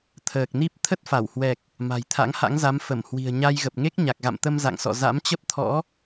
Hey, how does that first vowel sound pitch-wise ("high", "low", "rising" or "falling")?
low